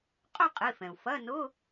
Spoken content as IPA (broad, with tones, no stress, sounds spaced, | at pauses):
qʼ ʊ˥˧ qʼ i˩˧˩ f ɛ̃˩ u̯ f ɐ˧˥˧ n ʊ˧˥˧